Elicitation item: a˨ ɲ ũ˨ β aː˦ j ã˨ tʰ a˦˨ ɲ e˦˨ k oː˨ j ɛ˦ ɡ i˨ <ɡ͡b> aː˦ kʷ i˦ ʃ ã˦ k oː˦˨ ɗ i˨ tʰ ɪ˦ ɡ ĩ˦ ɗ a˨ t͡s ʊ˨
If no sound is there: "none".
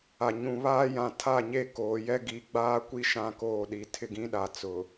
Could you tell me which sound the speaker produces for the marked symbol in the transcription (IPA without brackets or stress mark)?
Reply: ɡ͡b